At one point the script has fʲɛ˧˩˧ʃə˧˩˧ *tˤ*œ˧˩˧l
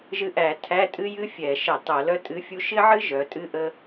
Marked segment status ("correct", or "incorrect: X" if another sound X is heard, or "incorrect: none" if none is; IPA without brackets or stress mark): correct